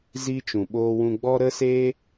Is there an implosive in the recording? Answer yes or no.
yes